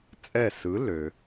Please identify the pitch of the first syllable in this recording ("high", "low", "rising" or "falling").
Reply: falling